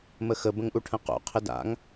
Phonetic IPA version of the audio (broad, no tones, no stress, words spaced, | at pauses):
məxə bə̃ŋʔuʈʰə̃qo̰ qʰɪda̰ŋ